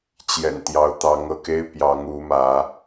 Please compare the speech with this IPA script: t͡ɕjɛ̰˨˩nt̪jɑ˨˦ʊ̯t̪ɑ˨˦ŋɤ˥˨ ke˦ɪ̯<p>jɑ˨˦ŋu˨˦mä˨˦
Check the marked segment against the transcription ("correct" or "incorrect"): correct